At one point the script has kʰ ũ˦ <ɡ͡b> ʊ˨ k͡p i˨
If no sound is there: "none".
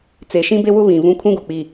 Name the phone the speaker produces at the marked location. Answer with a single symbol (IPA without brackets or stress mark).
ɡ